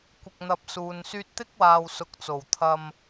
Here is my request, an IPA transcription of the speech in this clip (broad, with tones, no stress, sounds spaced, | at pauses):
kʷ ɪ˨ k̚ n̪ ɐ˨ p̚ s uː˨ n s yː˧ t̚ t̪ ɪ˥ k̚ w aː˨ w s ʊ˨ k̚ t͡s o˨˩ w t̪ʰ ɐ˧ m